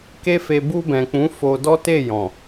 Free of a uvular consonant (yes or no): yes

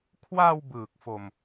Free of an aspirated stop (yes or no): no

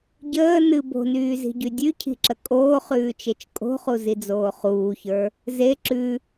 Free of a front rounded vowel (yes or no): no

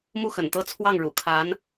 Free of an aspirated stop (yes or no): no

